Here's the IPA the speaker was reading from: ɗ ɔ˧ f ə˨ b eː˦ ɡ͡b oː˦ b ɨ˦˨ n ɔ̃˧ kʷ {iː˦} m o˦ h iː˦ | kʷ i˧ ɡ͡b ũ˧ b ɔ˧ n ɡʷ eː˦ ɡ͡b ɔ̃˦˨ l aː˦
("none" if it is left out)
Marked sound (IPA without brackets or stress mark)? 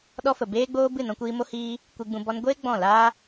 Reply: iː˧